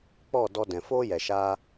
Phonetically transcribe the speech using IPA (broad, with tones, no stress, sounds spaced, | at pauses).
k͡p ɔ˦˨ d ɔ˧ d ɛ̃˨ f oː˦ j ɛ˨ ʃ aː˧